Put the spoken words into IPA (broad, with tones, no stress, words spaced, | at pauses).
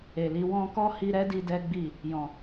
e˨li˨˦ wɔ̃˧ kɔ˦hi˧ɾɛ˦di˧ dɛ˦ɡ͡bi˦˨ | jɔ̃˨